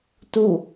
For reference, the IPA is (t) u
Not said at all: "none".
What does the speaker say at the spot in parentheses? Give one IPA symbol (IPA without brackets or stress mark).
t